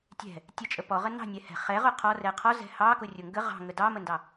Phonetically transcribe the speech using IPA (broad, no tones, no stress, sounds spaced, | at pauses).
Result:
tʲ ɛ̤ | tʲ ə t͡ʃʼ ə p ɔ ʁ ə n ɑ̤ nʲ ɛ h ɛ̤ χ ɛ ʁ ʊ qʰ ɔ r ɛ qʰ ɔ z ɛ̤ h ɑ k ʊ rʲ ʊ ŋ ɡ ə ʁ ɑ̤ ŋ ə d ɑ m ə n d ɑ